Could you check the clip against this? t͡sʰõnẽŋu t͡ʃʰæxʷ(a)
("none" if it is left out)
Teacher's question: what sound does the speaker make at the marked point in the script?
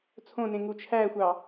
ɑ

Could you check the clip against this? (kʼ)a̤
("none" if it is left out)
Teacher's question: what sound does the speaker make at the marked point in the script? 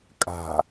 kʼ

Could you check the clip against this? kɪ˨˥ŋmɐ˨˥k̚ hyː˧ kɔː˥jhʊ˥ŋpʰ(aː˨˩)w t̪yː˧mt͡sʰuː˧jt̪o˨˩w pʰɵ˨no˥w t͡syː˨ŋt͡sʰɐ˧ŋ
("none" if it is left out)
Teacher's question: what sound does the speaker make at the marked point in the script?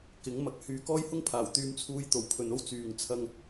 aː˨˩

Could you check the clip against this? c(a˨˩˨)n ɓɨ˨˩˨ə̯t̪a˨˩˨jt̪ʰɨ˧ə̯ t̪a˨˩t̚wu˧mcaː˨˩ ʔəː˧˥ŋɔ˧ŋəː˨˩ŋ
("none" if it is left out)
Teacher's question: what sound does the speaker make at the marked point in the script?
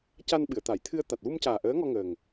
a˧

